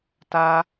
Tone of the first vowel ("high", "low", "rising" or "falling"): high